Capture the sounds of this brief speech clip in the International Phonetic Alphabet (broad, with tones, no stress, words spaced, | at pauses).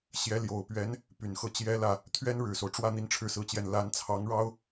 ɕjɛ˧˥ljo˨˩ʊ̯pɥɛ˧˥n | py˨˩nxɤ˥˩ t͡ɕjɛ˥lä˥˩ | t̪ʰɥɛ˥nɻɻ̩˨˩so˦ʊ̯ʈ͡ʂwä˥˧ n̪i˥˧nʈ͡ʂʰɻ̩˥˧sɹ̩˥˧t͡ɕjɛ˥˩n la˧˥nt͡sʰɑ˧˥ŋɻɑ˥ʊ̯